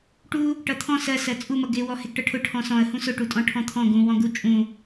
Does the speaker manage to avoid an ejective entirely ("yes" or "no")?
no